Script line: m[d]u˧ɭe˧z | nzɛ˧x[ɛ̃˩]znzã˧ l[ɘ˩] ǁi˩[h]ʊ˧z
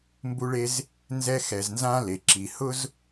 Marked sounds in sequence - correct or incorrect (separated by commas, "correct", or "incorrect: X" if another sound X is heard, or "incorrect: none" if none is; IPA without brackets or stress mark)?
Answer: incorrect: b, incorrect: ɛ˩, incorrect: e˩, correct